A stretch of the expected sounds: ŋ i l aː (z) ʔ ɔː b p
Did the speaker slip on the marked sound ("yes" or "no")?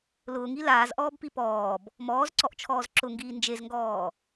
no